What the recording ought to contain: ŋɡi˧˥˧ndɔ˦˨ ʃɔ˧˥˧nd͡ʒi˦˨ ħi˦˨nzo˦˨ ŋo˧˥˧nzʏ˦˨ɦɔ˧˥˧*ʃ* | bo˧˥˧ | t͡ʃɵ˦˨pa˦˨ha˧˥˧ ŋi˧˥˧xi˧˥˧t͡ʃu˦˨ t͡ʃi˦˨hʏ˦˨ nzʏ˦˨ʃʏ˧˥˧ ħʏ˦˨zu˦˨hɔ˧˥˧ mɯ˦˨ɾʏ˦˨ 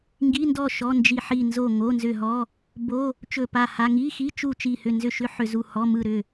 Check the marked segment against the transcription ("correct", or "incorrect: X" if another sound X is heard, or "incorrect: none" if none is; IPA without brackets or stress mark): incorrect: none